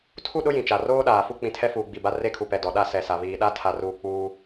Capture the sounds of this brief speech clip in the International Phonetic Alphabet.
tʰu˦˨ɗʊ˦ jĩ˨t͡ʃa˨ roː˦ɗaː˨ fu˦k͡pĩ˨tʰɛ˦fuː˨ ɡ͡bi˨ba˦ re˦kʰu˨ pɛ˨dɔ˨ɗa˦ sɛ˨sa˨ βiː˨ɗa˦tʰa˨ruː˨ k͡puː˦

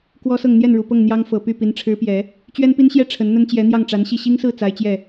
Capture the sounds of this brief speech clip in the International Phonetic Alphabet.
kwɔ˥sɤ˥˧ŋ n̪jɛ˥˩nɻu˨˩pɤ˥˩ŋ n̪jɑ˥ŋ fɤ˨˩ py˥˩pi˧˥n ʈ͡ʂʰɻ̩˧˥pjɛ˨˩˦ | t͡ɕɥɛ˥npi˥nɕjɛ˥ ʈ͡ʂʰə˧˥nn̪ə˥nt͡ɕjɛ˧˥ n̪jɑ˥˩ŋʈ͡ʂa˧˥nɕi˥˩ ɕi˥ŋsɹ̩˥˩ t͡sa˧˥ɪ̯t͡ɕjɛ˥˩

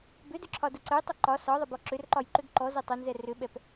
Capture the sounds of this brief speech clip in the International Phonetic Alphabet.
bʏdʏǁʰɒdə ǀəjtˤə ǃɒ sɒðˤəbɔ ǁʏrǃɒjǃʏɡ ǃɔze tˤʏnzɛ rʏɓɛp

